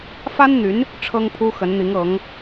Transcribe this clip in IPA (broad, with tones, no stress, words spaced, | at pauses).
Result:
fa˥nn̪y˧˥n | ʈ͡ʂʰɤ˥ŋpʰu˥xə˧˥nn̪i˧˥ŋ ɤ˧˥ŋ